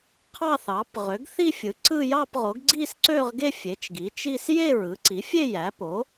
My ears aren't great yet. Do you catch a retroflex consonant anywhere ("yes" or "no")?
no